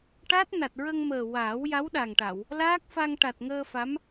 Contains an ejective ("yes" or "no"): no